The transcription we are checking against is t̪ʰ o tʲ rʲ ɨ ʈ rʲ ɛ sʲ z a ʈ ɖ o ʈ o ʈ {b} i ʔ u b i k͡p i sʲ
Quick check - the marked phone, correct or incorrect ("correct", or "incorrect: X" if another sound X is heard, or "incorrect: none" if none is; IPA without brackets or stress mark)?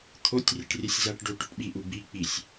incorrect: ɓ